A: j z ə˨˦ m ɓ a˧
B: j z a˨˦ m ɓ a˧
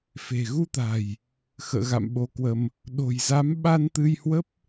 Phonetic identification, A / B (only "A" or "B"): B